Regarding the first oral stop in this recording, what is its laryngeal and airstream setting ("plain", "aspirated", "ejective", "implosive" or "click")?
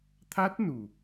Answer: aspirated